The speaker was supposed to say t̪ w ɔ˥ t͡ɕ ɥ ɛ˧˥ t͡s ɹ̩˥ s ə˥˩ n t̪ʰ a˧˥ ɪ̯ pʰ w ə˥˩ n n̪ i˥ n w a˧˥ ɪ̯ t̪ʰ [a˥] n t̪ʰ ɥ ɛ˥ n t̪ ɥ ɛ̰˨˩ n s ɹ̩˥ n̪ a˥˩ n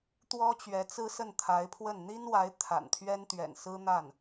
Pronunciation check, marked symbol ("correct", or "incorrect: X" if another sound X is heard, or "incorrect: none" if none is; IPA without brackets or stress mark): incorrect: a̰˨˩